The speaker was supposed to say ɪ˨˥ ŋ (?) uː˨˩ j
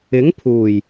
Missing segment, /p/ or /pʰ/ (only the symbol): pʰ